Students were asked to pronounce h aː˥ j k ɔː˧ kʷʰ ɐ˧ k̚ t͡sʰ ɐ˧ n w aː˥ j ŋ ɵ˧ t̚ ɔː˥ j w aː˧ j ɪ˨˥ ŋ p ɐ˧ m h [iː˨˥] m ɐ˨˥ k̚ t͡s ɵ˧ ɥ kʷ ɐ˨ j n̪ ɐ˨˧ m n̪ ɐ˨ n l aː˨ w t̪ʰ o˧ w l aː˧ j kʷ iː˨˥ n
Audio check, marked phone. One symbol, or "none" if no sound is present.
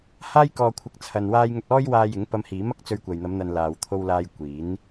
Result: iː˨˥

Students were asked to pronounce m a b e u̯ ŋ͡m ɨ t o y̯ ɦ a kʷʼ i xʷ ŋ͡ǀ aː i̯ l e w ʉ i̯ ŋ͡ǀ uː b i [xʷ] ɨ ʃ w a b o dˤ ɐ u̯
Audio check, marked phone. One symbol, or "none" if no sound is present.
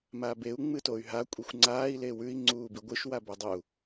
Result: ɡʷ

